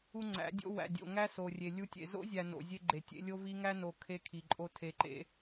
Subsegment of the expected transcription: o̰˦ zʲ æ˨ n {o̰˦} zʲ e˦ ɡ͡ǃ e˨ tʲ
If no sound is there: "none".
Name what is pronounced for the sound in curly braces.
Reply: o̰˨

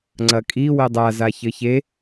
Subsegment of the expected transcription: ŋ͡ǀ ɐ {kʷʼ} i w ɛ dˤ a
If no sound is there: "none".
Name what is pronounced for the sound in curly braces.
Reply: kʼ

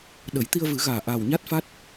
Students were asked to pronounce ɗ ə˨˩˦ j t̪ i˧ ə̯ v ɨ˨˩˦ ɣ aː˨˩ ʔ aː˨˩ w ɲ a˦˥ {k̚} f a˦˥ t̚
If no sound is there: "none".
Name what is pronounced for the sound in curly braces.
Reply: t̚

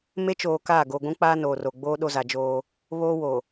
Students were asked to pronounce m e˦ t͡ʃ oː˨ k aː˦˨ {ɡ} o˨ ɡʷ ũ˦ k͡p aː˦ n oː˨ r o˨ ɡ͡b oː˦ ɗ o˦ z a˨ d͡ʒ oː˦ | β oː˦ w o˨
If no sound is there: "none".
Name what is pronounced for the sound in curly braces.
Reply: ɡ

